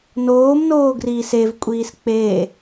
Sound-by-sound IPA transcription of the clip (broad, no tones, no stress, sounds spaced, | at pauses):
n oː m n oː ɡ r iː s e v kʷʼ iː s k͡p e